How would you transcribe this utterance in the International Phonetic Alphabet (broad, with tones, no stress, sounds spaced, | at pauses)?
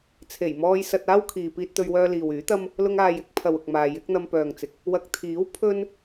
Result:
t͡sʰ e˨˩ j m ɔː˧ j s ɐ˧ t̚ aː˥ w kʰ iː˨ p iː˥ t̚ t̪ ɵ˥ ɥ w œː˥ l iː˨ w yː˨˥ t̪ ɐ˥ m | l ʊ˧ ŋ aː˨ j ɪ˨˥ k̚ pʰ ɐ˨ w ʊ˨ k̚ m aː˨ j ɪ˨˥ k̚ n̪ ɐ˧ m p œː˨ ŋ t͡s ɪ˨ k̚ | w ɐ˨ k̚ t̪ʰ iː˨˥ w pʰ ɵ˥ n